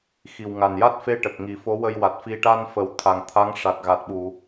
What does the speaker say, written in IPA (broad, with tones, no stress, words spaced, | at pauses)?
xi˨˩wŋa˨˩n ja˦˥t̚fe˧ ʈə˨˩k̚ŋi˨˩˦fo˧˥ wə˧jwa˨˩t̚fi˧ ʈa˧nfə˨˩w t̪ʰa˨˩ŋt̪ʰa˧˥ŋʂa˨˩t̚ ɣa˨˩t̚ɓu˨˩˨